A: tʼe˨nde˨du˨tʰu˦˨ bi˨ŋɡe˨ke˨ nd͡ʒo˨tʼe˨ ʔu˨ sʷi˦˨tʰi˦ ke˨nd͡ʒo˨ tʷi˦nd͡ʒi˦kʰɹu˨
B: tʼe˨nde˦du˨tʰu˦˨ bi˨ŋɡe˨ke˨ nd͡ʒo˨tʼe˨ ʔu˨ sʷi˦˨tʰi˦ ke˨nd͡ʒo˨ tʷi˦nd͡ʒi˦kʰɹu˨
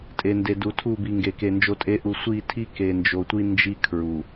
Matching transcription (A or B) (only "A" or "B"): A